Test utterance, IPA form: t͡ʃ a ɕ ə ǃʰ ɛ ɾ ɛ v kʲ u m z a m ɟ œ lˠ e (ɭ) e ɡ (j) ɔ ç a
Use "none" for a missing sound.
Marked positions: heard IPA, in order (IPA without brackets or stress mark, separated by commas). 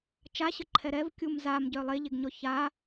ʎ, ɲ